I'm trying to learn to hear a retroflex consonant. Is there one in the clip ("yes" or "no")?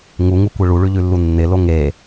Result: yes